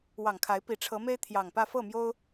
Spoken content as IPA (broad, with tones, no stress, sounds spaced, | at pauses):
w ɑ˨˩ ŋ kʰ a˨˦ ɪ̯ p i˨˩ ʈ͡ʂʰ ɤ˨˦ m e˦ ɪ̯ t̪ʰ j ɑ˨˩ ŋ p ä˥˨ f ɤ˥˨ m j o˦ ʊ̯